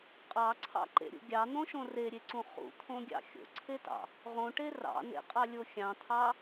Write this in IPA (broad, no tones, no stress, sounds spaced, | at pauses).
qʼ ɑ ǀʰ ɑ̰ ǃ ḛ ɾʲ ṵ ɡʲ ɑ n̪ õ ʃ õ r e ɾʲ e ǀ ũ χ ṵ t̪ʰ õ ɡʲ ɑ̰ xʲ o̰ ǀʰ e t ɑ̰ | ʁ õ ʈ e r ɑ̰ n ḛ qʼ ɑ lʲ o xʲ ɑ̃ t̪ʰ ɑ